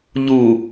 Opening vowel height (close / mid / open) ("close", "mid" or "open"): close